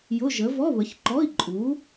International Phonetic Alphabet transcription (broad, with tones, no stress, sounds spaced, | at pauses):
j ʊ˧˥˧ ʒ ə˨˥ v ɔ˧˥˧ β ə˨˥ ç ǃ ɔ˧˥˧ i̯ ǃʼ u˨˥